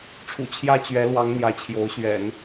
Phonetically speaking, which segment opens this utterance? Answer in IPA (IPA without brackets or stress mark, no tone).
ʈ͡ʂʰ